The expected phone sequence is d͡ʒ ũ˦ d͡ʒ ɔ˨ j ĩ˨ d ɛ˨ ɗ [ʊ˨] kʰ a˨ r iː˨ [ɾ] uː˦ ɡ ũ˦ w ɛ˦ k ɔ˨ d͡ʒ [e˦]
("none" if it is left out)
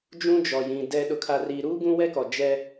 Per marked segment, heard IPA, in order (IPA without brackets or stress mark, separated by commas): ʊ˨, ɾ, ɛ˦